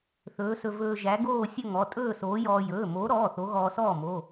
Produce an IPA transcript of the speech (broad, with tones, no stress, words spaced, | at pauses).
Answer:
θɵː˨˥sɵ˧ vɵː˧ʒæ˨˥ɡoː˥˧ sʲɵ˥˧ŋɔ˩˧˩ tʼɵː˥˧soː˨˥jɔː˧ jɵː˩˧˩moː˨˥ɾɔː˩˧˩ θo˨˥ɣɔː˧sɔː˥˩ mo˩˧˩